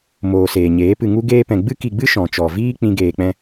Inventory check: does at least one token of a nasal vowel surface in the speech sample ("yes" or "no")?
yes